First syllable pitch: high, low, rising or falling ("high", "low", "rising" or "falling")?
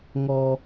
high